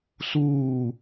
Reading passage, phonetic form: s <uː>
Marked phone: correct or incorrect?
correct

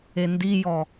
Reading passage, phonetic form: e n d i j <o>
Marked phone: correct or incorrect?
incorrect: ɔ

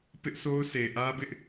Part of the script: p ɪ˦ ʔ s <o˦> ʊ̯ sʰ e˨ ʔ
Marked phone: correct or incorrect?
correct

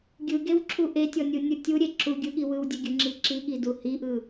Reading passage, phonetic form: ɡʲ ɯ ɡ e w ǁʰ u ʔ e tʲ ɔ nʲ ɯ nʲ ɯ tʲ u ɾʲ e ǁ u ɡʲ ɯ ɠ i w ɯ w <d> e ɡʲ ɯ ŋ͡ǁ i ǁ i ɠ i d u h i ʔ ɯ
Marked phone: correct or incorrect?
incorrect: dʲ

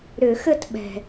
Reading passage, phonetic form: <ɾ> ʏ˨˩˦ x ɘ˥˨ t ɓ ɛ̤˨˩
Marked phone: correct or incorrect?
correct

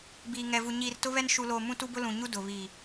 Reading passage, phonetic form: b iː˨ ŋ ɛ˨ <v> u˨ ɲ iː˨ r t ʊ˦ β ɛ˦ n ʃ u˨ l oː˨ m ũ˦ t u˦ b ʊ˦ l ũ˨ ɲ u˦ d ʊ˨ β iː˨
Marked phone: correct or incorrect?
correct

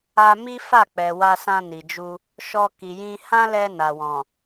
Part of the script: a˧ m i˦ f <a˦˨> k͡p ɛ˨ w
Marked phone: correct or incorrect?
correct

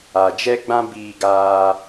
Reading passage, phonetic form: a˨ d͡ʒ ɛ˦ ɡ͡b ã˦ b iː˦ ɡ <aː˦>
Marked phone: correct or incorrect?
correct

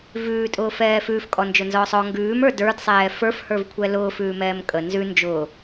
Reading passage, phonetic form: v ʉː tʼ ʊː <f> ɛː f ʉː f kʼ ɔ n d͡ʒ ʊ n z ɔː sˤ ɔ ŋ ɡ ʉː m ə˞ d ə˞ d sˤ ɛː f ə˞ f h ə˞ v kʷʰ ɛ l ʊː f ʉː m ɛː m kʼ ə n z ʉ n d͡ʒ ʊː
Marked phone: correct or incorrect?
correct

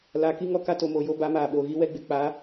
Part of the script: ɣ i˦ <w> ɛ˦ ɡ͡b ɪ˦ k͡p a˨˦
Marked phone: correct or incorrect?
correct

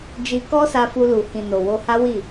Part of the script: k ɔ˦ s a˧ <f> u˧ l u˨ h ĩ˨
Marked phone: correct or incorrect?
correct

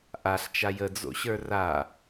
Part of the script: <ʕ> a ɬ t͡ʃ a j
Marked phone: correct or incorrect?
incorrect: ʔ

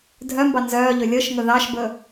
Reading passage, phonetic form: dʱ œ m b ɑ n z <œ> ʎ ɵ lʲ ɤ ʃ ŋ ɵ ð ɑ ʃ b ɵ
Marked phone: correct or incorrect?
incorrect: œː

